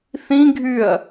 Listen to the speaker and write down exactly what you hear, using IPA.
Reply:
θ ĩ ɡʱ y ɐ̯

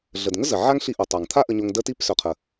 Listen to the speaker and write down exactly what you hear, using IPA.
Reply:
ɮ ə˨ d ŋ ə˦ z ə˨ ʕ a˦ ŋ ɬ i˧ ʔ o˨ tˤ a˨ ŋ t̪ʰ a˦ ʔ ə˦ ɲ o˦ ŋ d ə˦ t i˦ p s œ˨ qʰ ə˨

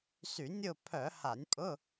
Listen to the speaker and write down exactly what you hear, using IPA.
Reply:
s y˧˩˧ nʲ ʊ˦˨ pʰ œ˧˩˧ h a˧˩˧ nʲ pʼ ʊ˧˥˧

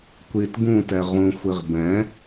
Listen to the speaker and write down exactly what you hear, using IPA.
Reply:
kʷ i t ɡ ũ t ɛ ʁ ũ xʷ i ʁ b ɛ̃

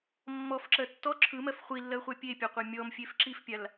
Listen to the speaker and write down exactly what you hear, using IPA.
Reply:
mː ɔ f ǁ ɜ tː ɔ ǁʰ ɯ m ɜ f χʷ i lː ɜ χʷ a pʲ e pʲ a qʷ a mʲ ɔ m fʲ e f ǁ i f pʲ a l

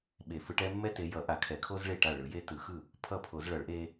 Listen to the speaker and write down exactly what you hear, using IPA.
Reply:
ɓ e˨˩˦ f ɯ˨˦ ʈ ɛ˥ mː ɛ˥ t e˨˦ j ʌ˨˩˦ ʔ a˨˩˦ kʰ ɛ˨˩˦ kʰ o˥ z ɭ e˥˩ ʈ a˥˩ ɭ ɯ˨˩˦ j e˥ t ɯ˨˩˦ x ɯ˥˩ | pʰ ʌ˥˩ pʰ o˨˩˦ z ɭ ʌ˨˩˦ ɭ ʔ e˥

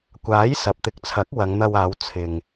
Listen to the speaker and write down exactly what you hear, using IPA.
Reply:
kʷ aː˨˥ j s ɐ˨ p̚ t̪ ɪ˨˥ k̚ t͡sʰ ɐ˨˥ k̚ w ɐ˨˧ ŋ n̪ ɐ˧ w aː˨˧ w t͡sʰ ɪ˨ ŋ

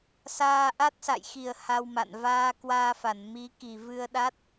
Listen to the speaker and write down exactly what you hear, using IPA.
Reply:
s aː˧ ʔ a˦˥ t̚ s a̰˧˨ j x i˨˩ ə̯ h a˧ w m a̰˧˨ n v aː˧ k w aː˧ f a˧˩ n m i˨˦ k i˨˩ v ɨ˧ ə̯ ɗ a˦˥ t̚

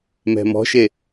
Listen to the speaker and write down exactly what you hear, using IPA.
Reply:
m ɛ̤ m ɔ̤ ʃ e

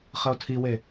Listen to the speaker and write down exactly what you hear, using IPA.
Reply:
χ ə o̯ tʰ i w e

